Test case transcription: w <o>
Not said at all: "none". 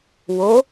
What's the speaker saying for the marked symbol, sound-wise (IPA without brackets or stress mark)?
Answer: o